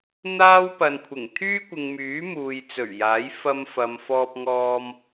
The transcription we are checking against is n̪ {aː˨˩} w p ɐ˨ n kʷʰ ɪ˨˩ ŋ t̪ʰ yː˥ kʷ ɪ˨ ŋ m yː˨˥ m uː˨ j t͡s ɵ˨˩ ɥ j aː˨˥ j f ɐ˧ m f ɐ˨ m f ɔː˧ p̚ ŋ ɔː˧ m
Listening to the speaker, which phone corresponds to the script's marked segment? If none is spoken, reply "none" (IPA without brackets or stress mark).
aː˥